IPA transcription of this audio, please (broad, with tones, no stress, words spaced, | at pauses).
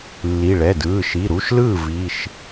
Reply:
lːi˩˧˩ ɭɛ˩˧˩dɯː˩˧˩ ʃi˩˧˩ɾu˩˧˩ʃlɯː˥˩ vi˩˧˩ʃ